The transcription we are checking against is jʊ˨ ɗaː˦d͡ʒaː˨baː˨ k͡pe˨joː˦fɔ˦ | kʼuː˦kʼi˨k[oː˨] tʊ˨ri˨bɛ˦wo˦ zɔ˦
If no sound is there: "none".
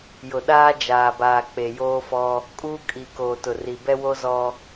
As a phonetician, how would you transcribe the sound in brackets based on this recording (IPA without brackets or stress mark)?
oː˨